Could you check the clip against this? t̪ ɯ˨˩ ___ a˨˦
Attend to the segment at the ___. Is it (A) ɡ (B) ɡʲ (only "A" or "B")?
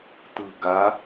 A